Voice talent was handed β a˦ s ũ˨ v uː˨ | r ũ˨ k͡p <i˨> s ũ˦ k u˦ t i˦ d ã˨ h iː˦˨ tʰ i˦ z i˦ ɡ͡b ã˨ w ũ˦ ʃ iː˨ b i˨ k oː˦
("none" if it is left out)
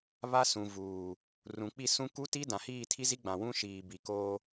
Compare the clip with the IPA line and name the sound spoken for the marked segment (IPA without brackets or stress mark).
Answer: i˦˨